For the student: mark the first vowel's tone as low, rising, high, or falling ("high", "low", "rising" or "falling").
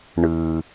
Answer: low